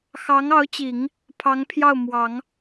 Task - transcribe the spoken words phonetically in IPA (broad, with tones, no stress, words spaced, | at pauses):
xɑ˧˥ŋɑ˧˥ʊ̯t͡ɕi˨˩˦ŋ | pʰɑ˧˥ŋpʰjɑ˥˩ʊ̯mwɑ˨˩˦ŋ